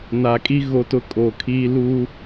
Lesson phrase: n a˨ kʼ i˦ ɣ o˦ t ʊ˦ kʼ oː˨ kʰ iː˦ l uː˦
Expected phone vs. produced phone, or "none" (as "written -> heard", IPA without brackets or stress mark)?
none